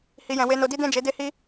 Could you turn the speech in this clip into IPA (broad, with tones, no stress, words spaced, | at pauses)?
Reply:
hi˧jɛ̃˧ we˧no˧di˦ dɛ̃˦˨d͡ʒe˨˦de˦hi˦